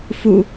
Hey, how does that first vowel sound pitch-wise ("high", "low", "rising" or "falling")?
low